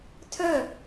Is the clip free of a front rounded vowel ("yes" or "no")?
no